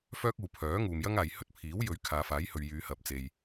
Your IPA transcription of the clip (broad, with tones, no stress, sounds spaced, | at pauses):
f œː˥ k̚ uː˨ pʰ œː˨˥ ŋ uː˨ m j ɐ˥ ŋ aː˨ j h ɵ˥ t̚ pʰ iː˨˥ w j ɵ˨˥ ɥ kʰ aː˨˧ f aː˨˥ j h ɵ˨ ɥ j yː˨˧ h ɐ˨ p̚ t͡s e˨ j